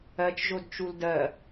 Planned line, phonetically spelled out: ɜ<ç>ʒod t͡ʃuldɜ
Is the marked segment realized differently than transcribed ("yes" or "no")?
yes